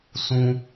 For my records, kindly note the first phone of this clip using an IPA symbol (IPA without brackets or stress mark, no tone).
s